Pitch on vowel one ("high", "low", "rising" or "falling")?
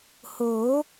rising